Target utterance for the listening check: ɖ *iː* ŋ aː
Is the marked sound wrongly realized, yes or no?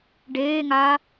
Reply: yes